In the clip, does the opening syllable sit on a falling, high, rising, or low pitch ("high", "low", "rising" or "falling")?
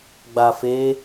low